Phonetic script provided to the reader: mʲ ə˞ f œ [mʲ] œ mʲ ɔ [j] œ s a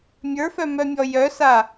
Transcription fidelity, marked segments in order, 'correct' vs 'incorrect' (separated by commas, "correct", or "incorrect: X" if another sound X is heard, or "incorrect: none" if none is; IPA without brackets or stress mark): incorrect: m, correct